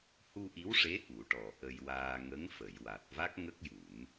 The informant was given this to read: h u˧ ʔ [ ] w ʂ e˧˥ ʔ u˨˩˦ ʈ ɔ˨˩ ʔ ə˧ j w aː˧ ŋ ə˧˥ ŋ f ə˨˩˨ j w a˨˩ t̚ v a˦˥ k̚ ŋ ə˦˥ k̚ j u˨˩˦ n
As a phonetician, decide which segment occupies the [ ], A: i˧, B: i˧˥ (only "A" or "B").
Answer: B